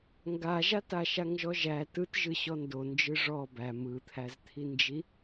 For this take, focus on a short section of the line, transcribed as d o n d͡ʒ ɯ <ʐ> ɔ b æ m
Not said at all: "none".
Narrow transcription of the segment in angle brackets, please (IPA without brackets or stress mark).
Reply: ʐ